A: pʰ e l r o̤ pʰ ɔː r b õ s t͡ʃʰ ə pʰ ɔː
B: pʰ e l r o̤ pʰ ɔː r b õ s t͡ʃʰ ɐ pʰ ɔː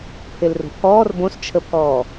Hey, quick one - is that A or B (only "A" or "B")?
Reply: A